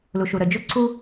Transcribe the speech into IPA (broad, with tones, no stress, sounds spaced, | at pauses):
l u˨ ʃ u˨ ɾ ə˨ d͡ʒ o˦ ǀ u˦